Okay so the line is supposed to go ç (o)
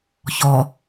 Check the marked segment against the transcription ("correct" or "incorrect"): incorrect